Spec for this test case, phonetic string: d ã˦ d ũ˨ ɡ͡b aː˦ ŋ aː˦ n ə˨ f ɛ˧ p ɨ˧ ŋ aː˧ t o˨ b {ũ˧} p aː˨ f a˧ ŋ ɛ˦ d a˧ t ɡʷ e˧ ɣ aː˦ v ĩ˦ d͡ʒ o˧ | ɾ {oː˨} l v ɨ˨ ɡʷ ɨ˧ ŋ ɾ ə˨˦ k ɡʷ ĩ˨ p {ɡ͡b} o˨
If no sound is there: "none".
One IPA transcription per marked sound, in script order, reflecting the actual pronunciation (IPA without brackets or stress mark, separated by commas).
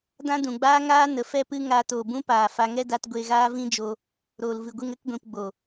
ũ˦, oː˨, ɡ͡b